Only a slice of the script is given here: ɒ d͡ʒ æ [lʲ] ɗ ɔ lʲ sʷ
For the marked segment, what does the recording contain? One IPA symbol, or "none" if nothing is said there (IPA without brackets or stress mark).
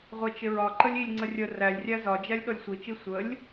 lʲ